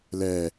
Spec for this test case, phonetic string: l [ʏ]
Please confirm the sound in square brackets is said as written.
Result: no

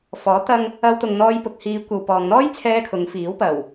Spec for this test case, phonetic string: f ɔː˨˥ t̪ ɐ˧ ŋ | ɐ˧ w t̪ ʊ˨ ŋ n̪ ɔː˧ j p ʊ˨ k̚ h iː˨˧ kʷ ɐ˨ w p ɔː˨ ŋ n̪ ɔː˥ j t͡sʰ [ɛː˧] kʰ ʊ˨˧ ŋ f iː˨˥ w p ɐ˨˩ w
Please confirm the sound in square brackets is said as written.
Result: yes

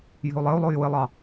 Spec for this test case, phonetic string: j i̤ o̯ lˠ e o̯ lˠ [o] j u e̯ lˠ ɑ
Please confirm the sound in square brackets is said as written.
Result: yes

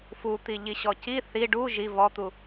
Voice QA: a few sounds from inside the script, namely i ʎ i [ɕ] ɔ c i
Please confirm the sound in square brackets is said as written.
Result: yes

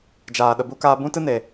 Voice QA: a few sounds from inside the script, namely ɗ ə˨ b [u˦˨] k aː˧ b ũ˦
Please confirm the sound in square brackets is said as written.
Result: no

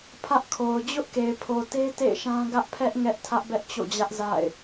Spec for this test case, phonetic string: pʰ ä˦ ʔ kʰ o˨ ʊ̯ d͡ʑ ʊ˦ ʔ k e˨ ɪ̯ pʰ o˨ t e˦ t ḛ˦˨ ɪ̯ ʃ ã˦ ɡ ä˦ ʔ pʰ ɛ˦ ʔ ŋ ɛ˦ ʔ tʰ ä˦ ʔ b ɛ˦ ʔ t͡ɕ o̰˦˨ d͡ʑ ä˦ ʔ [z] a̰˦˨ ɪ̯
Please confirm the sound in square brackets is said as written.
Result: yes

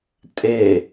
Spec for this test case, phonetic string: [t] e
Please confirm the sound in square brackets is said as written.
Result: no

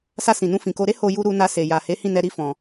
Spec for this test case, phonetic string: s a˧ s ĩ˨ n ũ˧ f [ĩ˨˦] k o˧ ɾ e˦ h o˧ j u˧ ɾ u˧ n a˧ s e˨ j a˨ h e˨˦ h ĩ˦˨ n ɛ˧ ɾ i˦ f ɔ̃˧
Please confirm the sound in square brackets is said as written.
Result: no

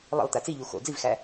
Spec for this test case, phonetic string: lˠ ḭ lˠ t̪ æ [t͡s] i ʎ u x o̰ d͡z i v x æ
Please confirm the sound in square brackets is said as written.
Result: yes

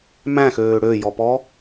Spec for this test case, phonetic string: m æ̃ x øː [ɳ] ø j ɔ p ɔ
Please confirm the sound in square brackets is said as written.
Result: no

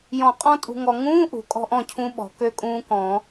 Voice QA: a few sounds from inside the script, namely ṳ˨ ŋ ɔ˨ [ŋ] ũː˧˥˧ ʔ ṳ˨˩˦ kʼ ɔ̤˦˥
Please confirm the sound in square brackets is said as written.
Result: yes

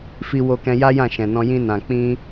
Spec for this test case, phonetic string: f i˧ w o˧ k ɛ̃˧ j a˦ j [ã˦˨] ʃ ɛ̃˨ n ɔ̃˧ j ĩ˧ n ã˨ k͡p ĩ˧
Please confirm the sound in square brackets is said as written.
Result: yes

